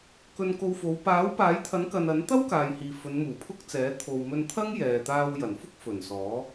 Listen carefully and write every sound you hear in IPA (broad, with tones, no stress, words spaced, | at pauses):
kɵ˧nko˧wfo˨˧w paː˨˥wpaː˨˥jt̪ʰɐ˨˥nkɐ˨n ɐ˨˥nt̪ɐ˥w kaː˨jhiː˨fɵ˨˧n muː˨˩pʰʊ˥k̚t͡sɛː˨˥ t̪ʰo˨wmɵ˧nt̪ʰɐ˥ŋ jɛː˨ t̪aː˧wjɐ˨˩nfʊ˥k̚fɵ˨˩n sɔː˨˥